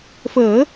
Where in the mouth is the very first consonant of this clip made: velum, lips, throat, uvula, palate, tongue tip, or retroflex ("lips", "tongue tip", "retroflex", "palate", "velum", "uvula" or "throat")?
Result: lips